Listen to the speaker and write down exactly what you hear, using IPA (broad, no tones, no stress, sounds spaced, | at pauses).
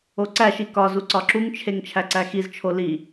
o ǀ æ ʃ i k ɒ z u ǀ ɒ ǁ u ŋ t͡ʃʰ e ŋ t͡ʃʰ æ ǀ æ x i z t͡ʃʰ o l i